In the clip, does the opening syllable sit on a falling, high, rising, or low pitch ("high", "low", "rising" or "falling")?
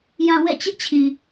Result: low